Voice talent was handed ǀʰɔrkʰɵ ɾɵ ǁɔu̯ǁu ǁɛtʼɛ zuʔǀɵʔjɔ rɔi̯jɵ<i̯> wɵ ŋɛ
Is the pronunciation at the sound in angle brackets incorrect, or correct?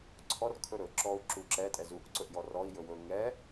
incorrect